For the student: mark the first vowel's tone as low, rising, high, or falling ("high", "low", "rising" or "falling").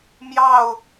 falling